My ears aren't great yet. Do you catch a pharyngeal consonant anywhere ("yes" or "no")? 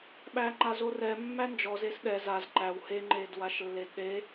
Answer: no